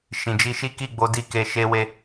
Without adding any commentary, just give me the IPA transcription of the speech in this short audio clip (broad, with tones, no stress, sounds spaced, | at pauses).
ʃ ĩ˨ d͡ʒ i˧ ʃ i˦ k i˦˨ ɡ͡b o˨˦ d i˦˨ k e˧ ʃ e˧ w e˧